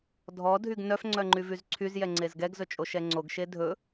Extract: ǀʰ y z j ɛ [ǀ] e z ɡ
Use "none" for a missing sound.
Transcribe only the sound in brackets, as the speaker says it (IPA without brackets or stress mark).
ŋ͡ǀ